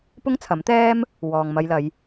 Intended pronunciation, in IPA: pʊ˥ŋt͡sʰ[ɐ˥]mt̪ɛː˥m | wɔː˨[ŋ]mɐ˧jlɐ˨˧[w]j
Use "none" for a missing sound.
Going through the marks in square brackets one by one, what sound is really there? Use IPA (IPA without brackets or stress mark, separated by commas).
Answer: ɐ˨˥, ŋ, none